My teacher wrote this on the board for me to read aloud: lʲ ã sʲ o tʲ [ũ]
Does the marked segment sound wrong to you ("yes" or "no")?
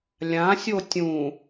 no